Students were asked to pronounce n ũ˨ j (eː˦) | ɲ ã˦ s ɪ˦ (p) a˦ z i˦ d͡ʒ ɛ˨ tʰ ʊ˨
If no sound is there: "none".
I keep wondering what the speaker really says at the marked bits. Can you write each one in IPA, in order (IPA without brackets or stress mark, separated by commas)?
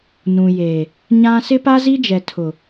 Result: eː˨, p